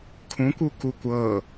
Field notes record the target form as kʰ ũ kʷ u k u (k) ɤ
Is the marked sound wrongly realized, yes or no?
yes